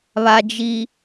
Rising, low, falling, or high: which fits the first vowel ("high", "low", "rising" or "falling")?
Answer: low